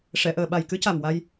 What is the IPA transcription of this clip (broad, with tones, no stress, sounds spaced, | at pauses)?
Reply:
ʂ ɛ˨˩˨ ʔ əː˨˩ ɓ a˨˩ j k ɨ˧˥ c a˨˩ m w a˧ j